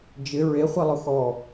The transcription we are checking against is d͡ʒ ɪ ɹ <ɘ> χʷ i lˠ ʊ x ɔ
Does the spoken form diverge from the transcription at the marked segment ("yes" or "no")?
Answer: yes